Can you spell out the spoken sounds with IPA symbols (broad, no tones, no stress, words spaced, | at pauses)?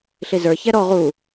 ɬizə˞ çɛɾɔ ʁu